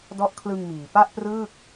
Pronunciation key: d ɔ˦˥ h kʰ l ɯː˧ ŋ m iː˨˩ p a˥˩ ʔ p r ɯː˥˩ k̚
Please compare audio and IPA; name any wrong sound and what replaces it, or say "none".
h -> ʔ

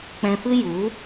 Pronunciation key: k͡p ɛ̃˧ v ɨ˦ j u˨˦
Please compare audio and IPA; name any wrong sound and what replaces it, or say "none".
v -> f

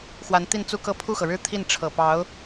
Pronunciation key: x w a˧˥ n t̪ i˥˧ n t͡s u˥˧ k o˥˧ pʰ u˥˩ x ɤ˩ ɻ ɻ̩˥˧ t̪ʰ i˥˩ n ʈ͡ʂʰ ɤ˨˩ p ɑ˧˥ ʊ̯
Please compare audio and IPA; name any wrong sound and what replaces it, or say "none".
o˥˧ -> ɤ˥˧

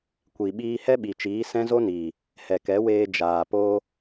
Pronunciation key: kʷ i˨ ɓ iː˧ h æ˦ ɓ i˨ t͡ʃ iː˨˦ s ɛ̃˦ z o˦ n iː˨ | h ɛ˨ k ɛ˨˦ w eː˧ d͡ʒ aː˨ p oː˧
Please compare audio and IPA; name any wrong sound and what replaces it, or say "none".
æ˦ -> ɛ˦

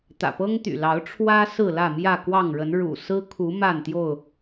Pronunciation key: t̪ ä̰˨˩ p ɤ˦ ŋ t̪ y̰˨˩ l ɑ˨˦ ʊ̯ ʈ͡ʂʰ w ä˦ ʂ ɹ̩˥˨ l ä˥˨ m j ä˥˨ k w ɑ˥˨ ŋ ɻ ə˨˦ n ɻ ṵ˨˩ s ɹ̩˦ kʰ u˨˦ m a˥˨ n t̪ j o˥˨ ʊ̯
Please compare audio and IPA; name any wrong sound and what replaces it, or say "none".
ʂ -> s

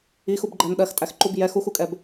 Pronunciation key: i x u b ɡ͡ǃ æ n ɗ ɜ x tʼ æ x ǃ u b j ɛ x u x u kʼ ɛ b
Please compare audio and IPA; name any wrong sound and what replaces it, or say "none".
none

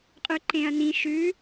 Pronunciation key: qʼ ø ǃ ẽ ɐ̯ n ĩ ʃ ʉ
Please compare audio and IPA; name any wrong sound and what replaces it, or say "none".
ø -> ʉ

